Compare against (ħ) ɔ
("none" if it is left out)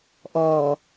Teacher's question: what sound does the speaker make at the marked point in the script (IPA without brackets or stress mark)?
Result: ʔ